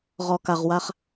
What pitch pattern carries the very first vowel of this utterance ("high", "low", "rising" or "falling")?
low